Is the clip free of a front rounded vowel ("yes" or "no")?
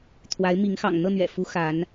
yes